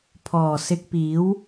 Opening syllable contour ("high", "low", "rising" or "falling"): low